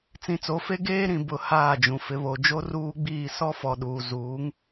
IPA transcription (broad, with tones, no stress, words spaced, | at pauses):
t͡sĩ˨t͡so˨˦fe˦ ɡeː˦ɾĩ˨ bʊ˨ haː˦˨d͡ʒũ˨ fɪ˨βo˨d͡ʒo˦ ruː˦ɡ͡biː˦˨ sɔ˦fɔ˨ɗuː˨ zuː˨˦ŋ